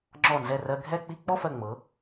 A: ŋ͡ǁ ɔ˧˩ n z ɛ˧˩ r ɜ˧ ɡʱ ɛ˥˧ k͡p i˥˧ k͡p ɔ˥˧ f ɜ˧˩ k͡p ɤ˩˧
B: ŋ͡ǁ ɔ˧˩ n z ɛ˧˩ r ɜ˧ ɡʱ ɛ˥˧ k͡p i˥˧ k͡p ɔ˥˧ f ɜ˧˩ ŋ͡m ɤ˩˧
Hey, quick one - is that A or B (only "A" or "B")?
B